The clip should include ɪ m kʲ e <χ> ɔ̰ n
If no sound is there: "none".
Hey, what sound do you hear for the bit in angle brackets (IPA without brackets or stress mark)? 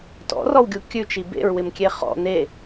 χ